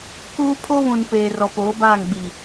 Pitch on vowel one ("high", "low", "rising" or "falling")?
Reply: high